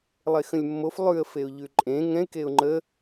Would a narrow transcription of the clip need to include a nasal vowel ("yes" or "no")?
yes